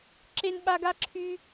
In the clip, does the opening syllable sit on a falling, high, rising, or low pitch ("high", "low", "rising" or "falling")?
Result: high